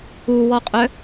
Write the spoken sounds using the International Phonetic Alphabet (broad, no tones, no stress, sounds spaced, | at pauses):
u w ɔ qʼ œ